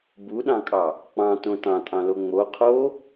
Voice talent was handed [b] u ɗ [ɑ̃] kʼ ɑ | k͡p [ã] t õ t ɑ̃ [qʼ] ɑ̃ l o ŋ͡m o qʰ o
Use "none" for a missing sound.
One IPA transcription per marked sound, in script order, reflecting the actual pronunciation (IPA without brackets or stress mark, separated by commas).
b, ɑ̃, ɑ̃, tʼ